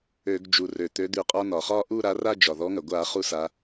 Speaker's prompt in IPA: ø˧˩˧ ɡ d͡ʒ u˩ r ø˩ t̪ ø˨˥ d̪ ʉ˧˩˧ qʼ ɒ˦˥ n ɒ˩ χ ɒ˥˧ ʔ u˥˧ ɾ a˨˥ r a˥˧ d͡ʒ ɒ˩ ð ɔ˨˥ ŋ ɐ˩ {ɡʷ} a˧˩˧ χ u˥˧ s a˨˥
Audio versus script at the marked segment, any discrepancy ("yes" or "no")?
no